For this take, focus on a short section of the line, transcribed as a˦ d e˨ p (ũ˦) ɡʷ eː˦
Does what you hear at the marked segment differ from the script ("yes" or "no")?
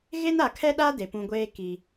no